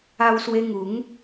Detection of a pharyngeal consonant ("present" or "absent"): absent